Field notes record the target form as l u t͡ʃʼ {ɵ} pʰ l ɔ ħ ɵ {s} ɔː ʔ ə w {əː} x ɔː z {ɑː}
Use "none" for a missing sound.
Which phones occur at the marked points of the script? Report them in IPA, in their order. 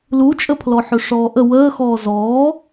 ə, ʂ, əː, ɔː

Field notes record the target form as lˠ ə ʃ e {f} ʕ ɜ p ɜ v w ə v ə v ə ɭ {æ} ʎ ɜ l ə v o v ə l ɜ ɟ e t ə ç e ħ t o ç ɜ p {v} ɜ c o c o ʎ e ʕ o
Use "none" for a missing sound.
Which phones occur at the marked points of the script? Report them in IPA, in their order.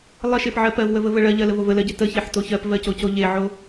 p, ɜ, v

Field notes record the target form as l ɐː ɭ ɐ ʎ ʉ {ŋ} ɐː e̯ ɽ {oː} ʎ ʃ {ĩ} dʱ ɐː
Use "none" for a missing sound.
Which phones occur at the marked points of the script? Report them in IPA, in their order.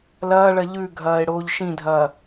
ɡʱ, oː, ĩ

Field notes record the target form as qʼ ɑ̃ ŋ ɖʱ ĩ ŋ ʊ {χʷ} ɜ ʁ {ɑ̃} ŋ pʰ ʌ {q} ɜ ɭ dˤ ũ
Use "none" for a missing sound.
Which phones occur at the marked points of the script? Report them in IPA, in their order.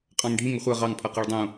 χʷ, ɑ, q

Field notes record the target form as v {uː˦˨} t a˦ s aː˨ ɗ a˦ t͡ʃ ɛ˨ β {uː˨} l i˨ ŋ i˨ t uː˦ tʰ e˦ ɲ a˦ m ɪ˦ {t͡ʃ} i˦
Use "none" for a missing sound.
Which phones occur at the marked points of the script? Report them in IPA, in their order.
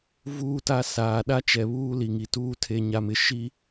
uː˦˨, uː˦, ʃ

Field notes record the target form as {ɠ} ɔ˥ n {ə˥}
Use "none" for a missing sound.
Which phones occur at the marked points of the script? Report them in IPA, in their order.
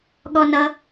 ɠ, ʌ˥

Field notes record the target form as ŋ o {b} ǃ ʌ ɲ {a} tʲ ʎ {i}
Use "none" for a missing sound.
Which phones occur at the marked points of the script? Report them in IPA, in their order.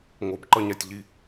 b, a, i

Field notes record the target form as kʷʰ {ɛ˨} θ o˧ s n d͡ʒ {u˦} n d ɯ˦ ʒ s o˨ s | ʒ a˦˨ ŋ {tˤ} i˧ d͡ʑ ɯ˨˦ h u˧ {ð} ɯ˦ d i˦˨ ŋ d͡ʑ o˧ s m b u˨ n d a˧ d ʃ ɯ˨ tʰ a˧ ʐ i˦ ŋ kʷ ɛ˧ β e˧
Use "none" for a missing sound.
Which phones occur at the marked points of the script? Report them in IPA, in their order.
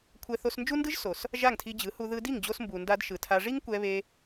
ɛ˧, u˦, tʰ, ð

